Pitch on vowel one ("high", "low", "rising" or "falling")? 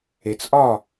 low